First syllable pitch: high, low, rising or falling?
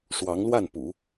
rising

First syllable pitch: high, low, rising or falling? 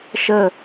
falling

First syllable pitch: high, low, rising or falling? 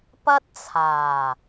high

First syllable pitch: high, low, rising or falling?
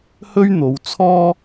high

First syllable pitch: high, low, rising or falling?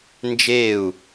falling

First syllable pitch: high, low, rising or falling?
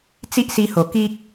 high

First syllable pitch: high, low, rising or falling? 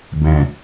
low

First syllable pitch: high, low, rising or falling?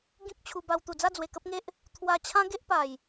high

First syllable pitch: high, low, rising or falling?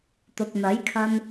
low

